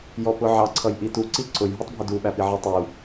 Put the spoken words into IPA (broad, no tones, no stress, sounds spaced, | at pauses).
j ɔ p ʊ ʕ ɑ ǀʰ ʌ j ʔ i t u ǀ i ǀ ʊ j ɦ u tˤ bʱ ə d u ɓ æ p i ʕ i tˤ u